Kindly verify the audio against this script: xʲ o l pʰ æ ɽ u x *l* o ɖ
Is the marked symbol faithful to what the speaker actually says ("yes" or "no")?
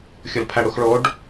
no